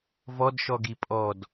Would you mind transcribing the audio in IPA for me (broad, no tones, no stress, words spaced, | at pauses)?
vɔdʃɔɡi pʼɔd